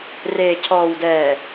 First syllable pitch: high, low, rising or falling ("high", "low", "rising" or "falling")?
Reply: low